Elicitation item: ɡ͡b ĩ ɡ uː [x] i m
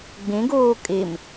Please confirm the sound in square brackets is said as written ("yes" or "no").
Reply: no